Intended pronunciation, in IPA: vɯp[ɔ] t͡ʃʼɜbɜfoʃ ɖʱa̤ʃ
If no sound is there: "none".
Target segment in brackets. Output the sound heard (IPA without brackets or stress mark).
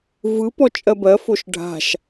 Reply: ɔ